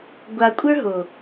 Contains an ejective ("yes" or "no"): yes